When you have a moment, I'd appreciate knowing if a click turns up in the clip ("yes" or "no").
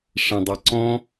yes